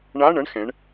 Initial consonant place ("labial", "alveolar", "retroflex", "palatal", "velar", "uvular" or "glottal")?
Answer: retroflex